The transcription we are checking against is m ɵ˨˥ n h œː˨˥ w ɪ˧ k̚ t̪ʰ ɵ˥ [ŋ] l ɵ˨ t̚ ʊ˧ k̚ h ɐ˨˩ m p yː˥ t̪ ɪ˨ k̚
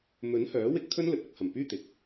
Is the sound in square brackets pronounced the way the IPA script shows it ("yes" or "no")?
no